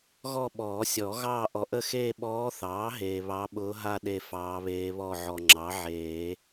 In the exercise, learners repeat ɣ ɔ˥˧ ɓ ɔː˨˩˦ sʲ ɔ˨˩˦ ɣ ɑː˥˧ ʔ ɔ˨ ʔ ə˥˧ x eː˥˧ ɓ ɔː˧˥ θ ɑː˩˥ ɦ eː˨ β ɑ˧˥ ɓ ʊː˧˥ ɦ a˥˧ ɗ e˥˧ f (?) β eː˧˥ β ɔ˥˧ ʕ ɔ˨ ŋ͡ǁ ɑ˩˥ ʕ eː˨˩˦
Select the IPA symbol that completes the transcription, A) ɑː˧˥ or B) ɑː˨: A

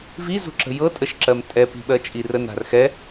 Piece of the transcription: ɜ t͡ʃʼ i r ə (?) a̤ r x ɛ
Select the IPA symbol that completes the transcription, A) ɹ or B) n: B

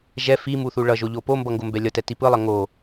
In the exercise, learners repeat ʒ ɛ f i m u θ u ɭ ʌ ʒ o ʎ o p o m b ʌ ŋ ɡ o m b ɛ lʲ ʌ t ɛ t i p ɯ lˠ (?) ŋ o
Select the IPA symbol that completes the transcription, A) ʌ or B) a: A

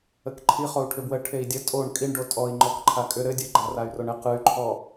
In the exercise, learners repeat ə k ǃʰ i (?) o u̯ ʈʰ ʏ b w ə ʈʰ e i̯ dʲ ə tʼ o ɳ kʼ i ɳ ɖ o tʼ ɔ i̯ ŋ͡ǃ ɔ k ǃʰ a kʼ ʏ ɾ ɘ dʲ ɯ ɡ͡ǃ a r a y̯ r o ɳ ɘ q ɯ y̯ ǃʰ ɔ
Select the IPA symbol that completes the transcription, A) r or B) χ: B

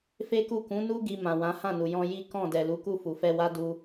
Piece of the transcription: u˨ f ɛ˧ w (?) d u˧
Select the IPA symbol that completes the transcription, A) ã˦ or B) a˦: B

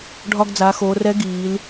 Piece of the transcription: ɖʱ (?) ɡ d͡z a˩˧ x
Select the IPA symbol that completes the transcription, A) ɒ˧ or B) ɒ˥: A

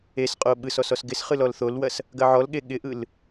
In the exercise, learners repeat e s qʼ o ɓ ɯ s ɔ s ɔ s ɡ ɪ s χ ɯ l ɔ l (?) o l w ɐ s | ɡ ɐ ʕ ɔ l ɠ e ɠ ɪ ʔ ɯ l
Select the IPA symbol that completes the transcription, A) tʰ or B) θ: B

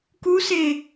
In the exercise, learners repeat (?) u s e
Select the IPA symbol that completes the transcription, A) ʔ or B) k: B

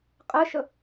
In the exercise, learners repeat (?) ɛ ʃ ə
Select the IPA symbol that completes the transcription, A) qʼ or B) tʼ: A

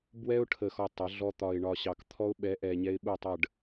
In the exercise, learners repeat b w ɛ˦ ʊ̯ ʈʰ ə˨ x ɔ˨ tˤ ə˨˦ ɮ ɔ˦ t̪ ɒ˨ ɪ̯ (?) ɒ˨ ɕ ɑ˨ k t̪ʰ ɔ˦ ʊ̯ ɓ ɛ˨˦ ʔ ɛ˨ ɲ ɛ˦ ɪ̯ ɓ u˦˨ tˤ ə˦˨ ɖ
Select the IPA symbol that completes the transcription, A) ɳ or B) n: A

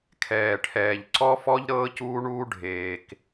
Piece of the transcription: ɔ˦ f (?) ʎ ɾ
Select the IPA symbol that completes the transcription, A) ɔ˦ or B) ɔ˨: A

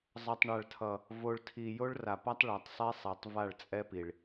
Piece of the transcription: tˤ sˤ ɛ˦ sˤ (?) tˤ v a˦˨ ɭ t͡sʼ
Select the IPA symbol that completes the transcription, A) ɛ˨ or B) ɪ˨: A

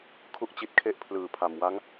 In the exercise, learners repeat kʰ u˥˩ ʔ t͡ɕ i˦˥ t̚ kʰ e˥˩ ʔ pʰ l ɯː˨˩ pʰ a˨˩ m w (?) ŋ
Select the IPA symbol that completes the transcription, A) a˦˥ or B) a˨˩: A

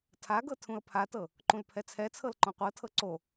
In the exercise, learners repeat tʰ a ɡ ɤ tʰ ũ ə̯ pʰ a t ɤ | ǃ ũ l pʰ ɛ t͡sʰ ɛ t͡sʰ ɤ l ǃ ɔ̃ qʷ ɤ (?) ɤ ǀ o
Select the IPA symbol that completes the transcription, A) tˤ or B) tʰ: B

